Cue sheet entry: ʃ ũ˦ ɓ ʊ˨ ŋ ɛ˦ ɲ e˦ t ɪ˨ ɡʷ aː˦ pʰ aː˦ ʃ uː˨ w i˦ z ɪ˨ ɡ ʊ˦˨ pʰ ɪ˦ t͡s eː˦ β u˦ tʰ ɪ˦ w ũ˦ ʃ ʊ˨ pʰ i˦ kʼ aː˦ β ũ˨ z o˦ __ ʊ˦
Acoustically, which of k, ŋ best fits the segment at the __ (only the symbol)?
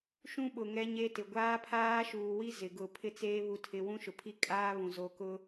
k